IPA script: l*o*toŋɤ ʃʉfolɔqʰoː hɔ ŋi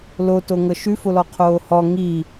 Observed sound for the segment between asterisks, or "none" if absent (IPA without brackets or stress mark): o